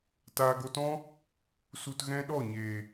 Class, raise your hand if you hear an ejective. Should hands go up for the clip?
no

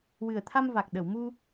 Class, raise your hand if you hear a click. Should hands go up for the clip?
no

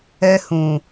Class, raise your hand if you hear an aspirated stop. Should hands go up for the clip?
no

